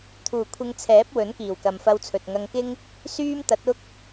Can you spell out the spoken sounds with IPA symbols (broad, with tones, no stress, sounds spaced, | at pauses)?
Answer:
t̪ʰ uː˨˩ kʷʰ ɪ˧ ŋ t͡sʰ ɛː˨˥ p̚ w ɵ˨˥ n k iː˨˩ w k ɐ˨ m f ɐ˧ w t͡sʰ ɵ˨ t̚ ŋ ɐ˧ ŋ k ɪ˥ ŋ | s yː˥ m t̪ ɐ˨˥ t̚ ʊ˥ k̚